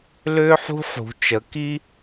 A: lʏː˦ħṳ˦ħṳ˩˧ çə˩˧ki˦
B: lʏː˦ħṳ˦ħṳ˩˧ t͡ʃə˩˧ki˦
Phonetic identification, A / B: B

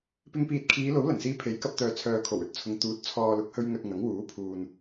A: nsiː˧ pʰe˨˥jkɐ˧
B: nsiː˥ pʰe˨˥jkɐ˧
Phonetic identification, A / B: A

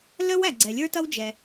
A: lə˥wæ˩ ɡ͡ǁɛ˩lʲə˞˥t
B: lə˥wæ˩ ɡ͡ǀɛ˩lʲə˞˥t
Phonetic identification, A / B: B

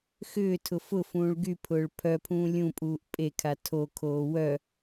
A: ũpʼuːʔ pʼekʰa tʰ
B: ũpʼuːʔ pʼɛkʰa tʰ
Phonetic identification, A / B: A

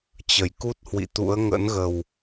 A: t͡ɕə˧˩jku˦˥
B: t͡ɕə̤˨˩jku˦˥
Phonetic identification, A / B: A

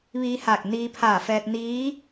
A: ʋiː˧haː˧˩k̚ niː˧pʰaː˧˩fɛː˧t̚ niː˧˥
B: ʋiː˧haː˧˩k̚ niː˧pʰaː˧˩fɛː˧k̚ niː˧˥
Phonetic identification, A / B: A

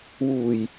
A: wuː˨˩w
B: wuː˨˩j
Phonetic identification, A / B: B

